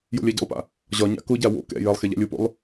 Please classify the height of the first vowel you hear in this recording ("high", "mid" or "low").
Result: mid